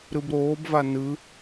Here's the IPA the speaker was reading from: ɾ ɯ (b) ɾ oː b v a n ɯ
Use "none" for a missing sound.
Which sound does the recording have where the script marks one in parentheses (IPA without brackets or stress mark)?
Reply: b